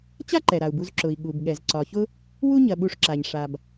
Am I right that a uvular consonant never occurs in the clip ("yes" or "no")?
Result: yes